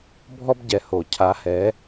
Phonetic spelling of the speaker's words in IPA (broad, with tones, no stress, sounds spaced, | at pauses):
bʱ ɔ˦ b ɟ ɛ˨ h o˨˩˦ cʰ a˨˥ h ɛ˨˥